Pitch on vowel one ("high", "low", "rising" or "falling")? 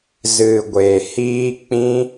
low